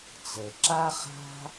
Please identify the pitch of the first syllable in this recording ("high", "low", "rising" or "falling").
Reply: low